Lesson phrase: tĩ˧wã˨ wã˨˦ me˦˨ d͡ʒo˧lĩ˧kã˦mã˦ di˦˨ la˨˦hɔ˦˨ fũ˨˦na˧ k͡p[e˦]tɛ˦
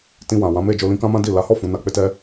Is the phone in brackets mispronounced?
no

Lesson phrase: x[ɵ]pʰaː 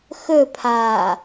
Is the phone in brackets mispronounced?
no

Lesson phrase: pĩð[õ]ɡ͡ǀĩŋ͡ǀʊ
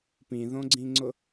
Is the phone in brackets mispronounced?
no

